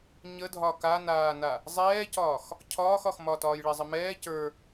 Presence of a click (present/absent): absent